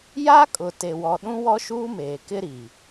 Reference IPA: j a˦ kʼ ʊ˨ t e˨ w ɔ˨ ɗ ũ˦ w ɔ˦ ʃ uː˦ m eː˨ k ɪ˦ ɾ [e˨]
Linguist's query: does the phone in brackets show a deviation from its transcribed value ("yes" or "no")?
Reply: yes